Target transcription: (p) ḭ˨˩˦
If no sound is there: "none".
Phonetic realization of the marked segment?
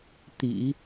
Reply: t̪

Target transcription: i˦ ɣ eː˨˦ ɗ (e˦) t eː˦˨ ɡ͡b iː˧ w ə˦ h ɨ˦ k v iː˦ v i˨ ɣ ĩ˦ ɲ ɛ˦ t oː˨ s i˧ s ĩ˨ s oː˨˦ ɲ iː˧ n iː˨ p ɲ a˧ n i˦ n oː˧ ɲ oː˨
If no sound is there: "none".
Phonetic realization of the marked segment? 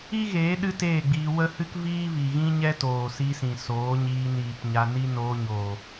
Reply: ɨ˦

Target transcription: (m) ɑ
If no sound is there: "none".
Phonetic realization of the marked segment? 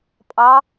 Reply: pʼ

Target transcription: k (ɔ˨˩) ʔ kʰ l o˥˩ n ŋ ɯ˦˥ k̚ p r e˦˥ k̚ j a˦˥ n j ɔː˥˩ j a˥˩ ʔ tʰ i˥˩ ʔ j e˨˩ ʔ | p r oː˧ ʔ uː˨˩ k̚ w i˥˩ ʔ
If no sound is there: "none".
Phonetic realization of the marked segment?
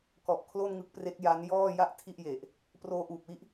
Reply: ɔ˨˩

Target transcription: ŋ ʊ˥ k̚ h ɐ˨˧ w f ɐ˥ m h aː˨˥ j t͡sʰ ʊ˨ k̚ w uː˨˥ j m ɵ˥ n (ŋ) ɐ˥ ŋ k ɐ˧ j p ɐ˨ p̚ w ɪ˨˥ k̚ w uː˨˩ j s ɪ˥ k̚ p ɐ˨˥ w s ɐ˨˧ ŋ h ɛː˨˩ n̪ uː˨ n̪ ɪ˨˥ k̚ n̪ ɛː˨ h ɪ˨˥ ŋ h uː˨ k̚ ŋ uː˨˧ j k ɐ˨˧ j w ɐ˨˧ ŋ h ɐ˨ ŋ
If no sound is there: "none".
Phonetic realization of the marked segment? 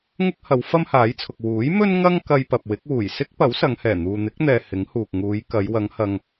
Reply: ŋ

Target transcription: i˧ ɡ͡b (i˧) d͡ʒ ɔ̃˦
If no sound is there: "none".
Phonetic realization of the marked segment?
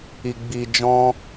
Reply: i˧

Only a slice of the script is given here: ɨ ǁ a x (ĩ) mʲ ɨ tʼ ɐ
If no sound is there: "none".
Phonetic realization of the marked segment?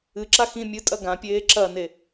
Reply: ĩ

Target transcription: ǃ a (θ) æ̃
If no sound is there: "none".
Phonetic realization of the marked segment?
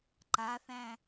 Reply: θ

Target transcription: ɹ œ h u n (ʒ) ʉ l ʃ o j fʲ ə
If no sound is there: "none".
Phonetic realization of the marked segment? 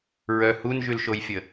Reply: ʒ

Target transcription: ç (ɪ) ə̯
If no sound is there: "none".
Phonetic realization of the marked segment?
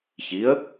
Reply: i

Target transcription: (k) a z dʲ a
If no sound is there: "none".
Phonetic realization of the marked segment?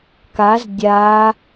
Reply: k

